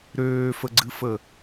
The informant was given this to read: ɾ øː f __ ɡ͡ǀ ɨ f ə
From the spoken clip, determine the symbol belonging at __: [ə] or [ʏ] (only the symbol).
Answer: ə